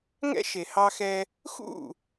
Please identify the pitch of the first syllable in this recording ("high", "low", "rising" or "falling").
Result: high